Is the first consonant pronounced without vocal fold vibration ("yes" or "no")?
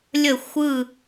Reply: no